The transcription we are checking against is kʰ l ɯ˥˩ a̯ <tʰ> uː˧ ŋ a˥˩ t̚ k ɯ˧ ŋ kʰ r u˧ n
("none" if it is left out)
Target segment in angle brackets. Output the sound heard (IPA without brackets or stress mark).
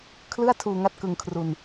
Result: tʰ